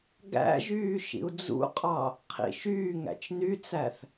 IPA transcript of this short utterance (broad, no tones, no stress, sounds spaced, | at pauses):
ɡ æ̰ ʒ yː ʃ ḭ u̯ d͡z ṵ qʼ ɑ | qʰ ḭ ʃ yː ŋ æ̰ t͡ʃ n y t͡s æ θ